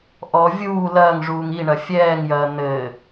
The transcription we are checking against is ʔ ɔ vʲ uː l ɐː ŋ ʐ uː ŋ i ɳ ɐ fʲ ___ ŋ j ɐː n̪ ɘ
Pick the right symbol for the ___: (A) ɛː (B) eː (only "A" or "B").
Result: A